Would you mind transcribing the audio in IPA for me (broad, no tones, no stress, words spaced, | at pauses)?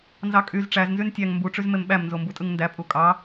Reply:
nzɑkʼyz ʈ͡ʂæznzyn tʲæŋ mbuʈ͡ʂyz memɓæmnzo mbutʼɯŋndæ pʼukʼɑ